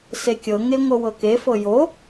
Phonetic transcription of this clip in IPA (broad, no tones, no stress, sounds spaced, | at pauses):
s e kʲ ɤ ŋ e ŋʷ ɤ w ɤ k e f ɤ j o